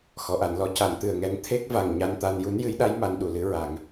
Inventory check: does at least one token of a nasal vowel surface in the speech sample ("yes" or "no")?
no